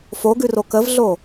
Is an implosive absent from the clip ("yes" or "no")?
yes